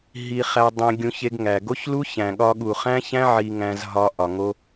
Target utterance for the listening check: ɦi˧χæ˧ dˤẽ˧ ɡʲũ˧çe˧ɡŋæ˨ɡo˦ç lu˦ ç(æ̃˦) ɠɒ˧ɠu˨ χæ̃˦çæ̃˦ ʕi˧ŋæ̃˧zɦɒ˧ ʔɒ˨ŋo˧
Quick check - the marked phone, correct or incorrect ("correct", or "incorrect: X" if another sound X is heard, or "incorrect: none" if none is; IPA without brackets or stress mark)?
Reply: incorrect: æ̃˨